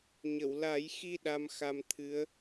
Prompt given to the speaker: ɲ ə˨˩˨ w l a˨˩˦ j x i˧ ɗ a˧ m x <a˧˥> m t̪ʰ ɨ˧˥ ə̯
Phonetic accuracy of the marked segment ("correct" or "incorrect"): incorrect